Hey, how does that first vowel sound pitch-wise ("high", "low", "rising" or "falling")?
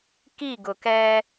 falling